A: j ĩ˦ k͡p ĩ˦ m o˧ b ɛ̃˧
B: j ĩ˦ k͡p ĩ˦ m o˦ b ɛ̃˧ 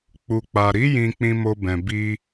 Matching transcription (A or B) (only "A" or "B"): B